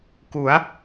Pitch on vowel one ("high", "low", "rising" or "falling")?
rising